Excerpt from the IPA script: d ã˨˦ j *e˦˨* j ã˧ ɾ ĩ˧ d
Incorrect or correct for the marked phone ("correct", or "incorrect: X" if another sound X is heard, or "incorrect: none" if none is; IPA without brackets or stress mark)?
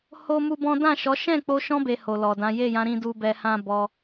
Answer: correct